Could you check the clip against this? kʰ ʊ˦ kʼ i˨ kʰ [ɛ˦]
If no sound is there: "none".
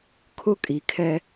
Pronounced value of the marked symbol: ɛ˦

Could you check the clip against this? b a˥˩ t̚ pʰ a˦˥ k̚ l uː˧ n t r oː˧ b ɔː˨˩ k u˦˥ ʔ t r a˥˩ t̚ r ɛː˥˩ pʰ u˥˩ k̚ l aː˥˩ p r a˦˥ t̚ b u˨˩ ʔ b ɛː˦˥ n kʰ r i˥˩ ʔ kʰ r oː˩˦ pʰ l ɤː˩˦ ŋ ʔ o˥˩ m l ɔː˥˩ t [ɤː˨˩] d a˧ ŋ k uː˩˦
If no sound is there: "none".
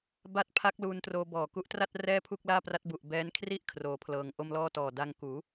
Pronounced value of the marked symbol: ɔː˨˩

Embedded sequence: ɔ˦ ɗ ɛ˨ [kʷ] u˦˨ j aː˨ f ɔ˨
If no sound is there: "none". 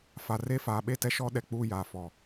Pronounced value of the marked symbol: k͡p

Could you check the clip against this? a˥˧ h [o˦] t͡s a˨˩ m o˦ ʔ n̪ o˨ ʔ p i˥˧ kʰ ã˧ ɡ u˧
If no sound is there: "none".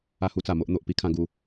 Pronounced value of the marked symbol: u˦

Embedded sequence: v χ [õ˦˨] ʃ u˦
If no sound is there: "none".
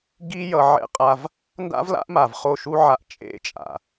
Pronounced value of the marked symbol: o˦˨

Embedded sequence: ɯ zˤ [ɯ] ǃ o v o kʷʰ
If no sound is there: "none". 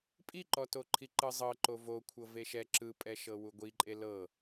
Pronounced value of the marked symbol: ɤ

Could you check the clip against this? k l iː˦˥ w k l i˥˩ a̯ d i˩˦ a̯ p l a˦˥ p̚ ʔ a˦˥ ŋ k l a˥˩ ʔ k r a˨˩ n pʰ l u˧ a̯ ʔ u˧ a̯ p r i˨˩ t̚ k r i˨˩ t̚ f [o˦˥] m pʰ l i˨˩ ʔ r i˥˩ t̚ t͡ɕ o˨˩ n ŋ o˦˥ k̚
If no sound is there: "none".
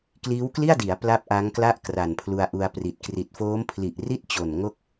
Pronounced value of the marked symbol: oː˦˥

